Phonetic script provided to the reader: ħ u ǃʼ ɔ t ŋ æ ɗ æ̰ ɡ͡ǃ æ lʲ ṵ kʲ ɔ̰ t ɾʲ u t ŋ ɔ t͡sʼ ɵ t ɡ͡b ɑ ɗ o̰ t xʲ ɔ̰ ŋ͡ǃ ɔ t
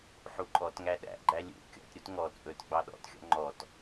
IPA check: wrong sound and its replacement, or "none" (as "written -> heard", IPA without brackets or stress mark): o̰ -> ɔ̰